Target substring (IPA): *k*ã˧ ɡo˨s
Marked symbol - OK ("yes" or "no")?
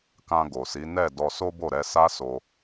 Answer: yes